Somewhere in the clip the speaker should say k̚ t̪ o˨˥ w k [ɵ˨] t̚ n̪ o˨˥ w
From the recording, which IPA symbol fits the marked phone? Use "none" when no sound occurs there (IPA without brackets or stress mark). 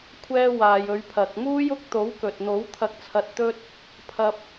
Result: ɵ˨